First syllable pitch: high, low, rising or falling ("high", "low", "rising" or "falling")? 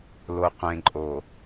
low